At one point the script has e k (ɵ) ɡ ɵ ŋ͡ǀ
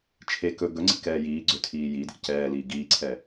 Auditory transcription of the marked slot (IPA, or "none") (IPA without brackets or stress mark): ɵ